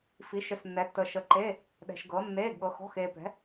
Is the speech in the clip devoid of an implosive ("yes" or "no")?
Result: no